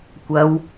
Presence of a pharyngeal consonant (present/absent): absent